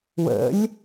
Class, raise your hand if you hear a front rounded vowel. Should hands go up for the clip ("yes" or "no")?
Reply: no